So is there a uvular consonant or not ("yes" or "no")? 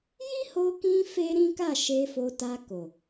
no